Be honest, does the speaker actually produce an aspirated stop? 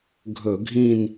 no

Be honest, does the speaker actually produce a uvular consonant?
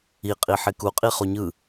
yes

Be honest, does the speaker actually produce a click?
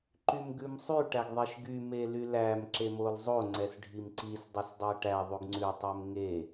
yes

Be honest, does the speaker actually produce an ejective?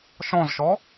no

